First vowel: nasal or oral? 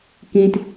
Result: nasal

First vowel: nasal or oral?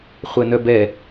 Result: oral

